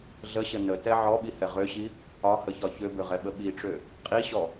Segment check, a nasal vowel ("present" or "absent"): absent